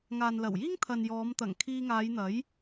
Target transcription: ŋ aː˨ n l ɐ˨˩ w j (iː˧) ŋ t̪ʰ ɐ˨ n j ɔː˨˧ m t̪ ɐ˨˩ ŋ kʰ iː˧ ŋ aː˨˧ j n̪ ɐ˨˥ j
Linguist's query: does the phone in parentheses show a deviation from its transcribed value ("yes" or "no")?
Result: yes